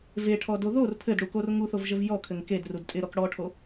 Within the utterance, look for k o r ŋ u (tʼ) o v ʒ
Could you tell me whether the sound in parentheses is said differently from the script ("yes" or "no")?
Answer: yes